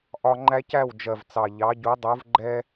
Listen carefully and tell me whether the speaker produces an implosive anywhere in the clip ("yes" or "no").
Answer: no